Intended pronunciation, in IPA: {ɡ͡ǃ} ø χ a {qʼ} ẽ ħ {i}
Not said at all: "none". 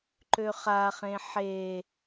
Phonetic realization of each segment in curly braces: ǃ, χ, e

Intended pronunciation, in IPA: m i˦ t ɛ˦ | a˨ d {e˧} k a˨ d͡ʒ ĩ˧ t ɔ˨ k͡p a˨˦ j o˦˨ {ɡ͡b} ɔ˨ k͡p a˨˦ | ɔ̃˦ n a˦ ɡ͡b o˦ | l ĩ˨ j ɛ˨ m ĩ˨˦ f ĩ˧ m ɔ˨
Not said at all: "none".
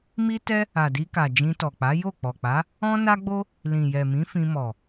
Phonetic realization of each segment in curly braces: i˧, k͡p

